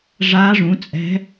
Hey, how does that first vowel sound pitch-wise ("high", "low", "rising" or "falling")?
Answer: rising